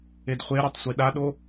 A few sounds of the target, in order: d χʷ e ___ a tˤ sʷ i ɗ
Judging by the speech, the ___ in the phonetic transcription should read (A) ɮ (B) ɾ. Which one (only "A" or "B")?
B